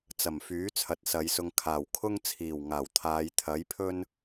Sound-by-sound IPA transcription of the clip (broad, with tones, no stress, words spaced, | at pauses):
t͡sɐ˨˩mfyː˨˥ t͡sʰɐ˨˥t̚sɐ˨˧jsʊ˧ŋ kʰaː˨˩wkʰʊ˥ŋt͡sʰiː˨˩w ŋaː˨˩wt̪ʰaː˨˧j t̪ʰɐ˨˥jpʰɵ˥n